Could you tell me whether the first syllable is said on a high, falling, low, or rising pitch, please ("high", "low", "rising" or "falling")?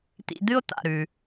low